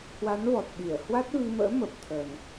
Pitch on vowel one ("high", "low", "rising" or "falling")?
rising